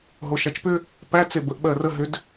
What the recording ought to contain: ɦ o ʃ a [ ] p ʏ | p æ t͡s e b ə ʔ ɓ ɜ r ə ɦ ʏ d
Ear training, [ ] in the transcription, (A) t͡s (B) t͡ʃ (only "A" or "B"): B